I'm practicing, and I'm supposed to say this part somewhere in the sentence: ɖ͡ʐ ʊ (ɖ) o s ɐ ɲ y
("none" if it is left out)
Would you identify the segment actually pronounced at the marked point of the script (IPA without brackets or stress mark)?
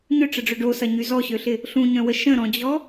ɖ